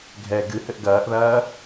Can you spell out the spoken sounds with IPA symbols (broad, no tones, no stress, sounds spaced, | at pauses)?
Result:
ɡʱ ɛ ɡ ɨ h ɘ ʔ ɡ ɐː ʔ ð ɐː